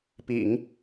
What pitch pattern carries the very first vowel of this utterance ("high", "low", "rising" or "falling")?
low